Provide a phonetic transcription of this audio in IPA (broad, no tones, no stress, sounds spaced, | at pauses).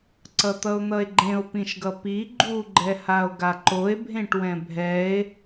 ǀ ʌ t̪ ʌ o̯ n̪ ʌ e̯ ɡ͡ǃ ẽ o̯ p ĩ ʃ ɡ ʌ p i ɡ͡ǃ u ɡ͡ǃ ɛ h a o̯ ɡ a ǃ o e̯ bʱ ẽ ʈ w ɛ̃ bʱ ɛ e̯